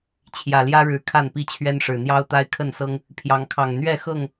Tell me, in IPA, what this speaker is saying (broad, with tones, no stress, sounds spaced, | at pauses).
t͡ɕʰ j ä˨˩ l j ä˦ ɻ ɻ̩˨˦ kʰ a˥˨ n p i˥˨ t͡ɕʰ ɥ ɛ˦ n ʂ ɻ̩˨˩ n̪ j ɑ˦ ʊ̯ t̪ a˦ ɪ̯ kʰ ə˥˨ n s ɤ˦ ŋ | pʰ j ɑ˨˦ ŋ kʰ ɑ˨˩ ŋ n̪ ɥ ɛ˥˨ x ɤ˥˨ ŋ